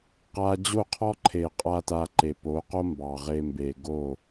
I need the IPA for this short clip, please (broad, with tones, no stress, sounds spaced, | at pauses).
q a˦ d͡ʑ o˦˨ qʰ ɔ˦ ǃʰ e˨ qʼ a˦ t a˧ ǃ e˨ p o˨˦ q o˦ m b ɑ˨ ʁ e˧ m b e˨ ɡ o˦˨